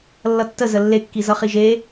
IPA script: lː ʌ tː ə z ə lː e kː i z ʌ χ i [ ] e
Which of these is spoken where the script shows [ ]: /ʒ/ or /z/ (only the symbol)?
ʒ